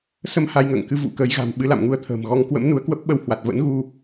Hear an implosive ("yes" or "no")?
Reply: yes